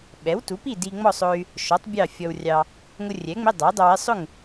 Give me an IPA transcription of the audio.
ɓɛ˩˥wtu˩˥pi˥˨ di˧ŋ͡mɔ˥˨sˤʊ˧y̯ | ʃɔ˩˥tˤ bʲɑ˥˨fʲɔ˧wrʲɑ˧ | ŋʊ˧rʲɛ˩˥ŋ͡mɪ˧˥˧ dˤʌ˩˥y̯dˤʊ˧wɪ˧˥˧ sˤʊ˥˨ŋ

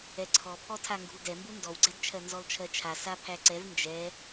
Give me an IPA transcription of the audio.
ɛǀʰɔpʰɔ tʰaŋɡṳldɛmbu ndɔwɡ͡ǀɛdt͡ʃʰɜ nzɔlt͡ʃʰɜt͡ʃʰa sapʰæǀɛv nd͡ʒɛ

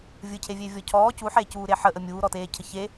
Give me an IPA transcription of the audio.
vʲɯcʰevʲevʲɔ cʰɔː cuħeːcuːɾe ħəʔə mʲuːɾɔteːcʰə çe

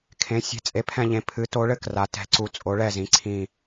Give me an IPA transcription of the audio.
kʰẽ˨˥ sʲɛ̤˨˥t͡sʼe˨˥pʰɛ̃˦˨ʎẽ˨˥ pʰɨ˨˥ to˨˥ɭɘ˦˨ kra˨˥tɛ̤˨˥ ǀu˨˥t͡sʼo˨˥ɭɛ˦˨zĩ˨˥ ǀʰĩ˦˨

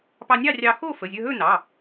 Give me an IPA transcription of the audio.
pɑ˧nʲɑ˥˧rʲɑ˧ xo˥˧fə˩˧˩zʲɵ˧ɦɵ˥˧ nɑ˩˧˩

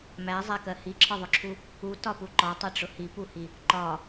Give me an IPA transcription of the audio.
mæzˤækɜ hiǁʰɒðˤʊǁʰu | utɒpu ǃɒtˤɛʈ͡ʂʊ hipuhi | ǃɒ

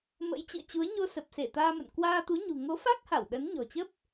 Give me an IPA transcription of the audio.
mə̰˧˥jt͡ɕɨ̰˧˨ə̯t͡ɕu˨˦ə̯ ɲo˧sə˨˩p̚se˧˩ t̪aː˧mə̰˧˨n kwaː˧t̪u˨˦ ɲṳ˨˩ŋo˨˦fa˦˥k̚ha˧˩w ɗə˨˦n ɲɔ̤˨˩t͡ɕə˦˥p̚

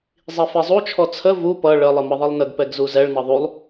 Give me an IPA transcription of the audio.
zˤifizˤu t͡ʃʰɔt͡sʰə vu pʌ ɭə lˠɨməðˤɨlˠnəɡ pɛɡzuzɛɭ nʌðˤulˠ

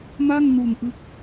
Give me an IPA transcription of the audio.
ma˥˩ŋnu˨˩nʔɯ˦˥k̚

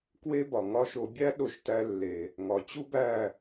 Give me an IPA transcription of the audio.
kwe˦bɒ˨ŋɒ˦ʃo˧ bʲæ˦ɗo˧ʃtæ˧lːe˨ | ŋɒ˨ t͡ɕu˦bæ˦˨

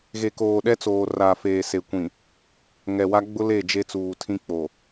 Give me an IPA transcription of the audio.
ɣe˨koː˨ɗɛ˦t͡soː˨ ra˨feː˨se˨ kʷĩ˨ | ŋɛ˨wa˦ ɡ͡bʊ˦le˦˨ d͡ʒe˦t͡suː˨tʰĩ˦k͡po˨

